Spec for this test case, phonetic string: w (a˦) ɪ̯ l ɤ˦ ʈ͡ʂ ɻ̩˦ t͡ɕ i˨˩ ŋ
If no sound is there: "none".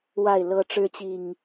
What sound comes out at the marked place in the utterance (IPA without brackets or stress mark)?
a˥˨